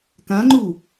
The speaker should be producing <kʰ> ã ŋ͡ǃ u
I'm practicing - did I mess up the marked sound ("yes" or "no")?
yes